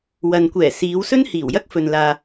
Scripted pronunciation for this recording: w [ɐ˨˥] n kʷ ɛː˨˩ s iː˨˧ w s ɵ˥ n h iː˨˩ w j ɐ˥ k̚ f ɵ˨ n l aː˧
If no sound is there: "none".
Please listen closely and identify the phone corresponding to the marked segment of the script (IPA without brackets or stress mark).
ɐ˨